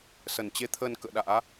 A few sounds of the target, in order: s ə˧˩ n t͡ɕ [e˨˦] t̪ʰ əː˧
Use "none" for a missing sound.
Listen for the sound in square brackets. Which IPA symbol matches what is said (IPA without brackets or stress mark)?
e˧